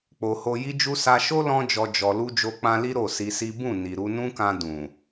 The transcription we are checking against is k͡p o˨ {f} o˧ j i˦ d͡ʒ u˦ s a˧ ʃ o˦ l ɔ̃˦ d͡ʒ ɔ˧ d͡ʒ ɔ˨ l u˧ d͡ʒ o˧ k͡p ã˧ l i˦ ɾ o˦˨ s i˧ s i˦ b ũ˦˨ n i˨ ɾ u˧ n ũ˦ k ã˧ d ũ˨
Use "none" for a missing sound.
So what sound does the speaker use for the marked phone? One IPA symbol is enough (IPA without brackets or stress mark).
h